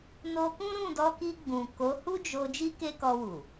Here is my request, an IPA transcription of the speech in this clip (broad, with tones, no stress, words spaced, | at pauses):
no˧kũ˦ ɾũ˦˨dɔ˧ki˧ ɡ͡bũ˨ko˨˦hu˦d͡ʒo˧ d͡ʒi˦ke˦kɔ˧wu˨